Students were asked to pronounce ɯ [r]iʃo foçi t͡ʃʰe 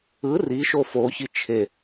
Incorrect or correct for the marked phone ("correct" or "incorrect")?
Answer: correct